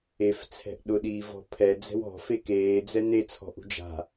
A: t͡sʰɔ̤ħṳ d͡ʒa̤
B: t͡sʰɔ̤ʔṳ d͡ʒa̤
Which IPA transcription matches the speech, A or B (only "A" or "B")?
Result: B